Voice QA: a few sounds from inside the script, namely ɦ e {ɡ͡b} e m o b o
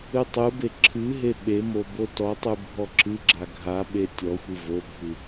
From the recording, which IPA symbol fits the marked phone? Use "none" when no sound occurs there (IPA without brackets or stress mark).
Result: ɓ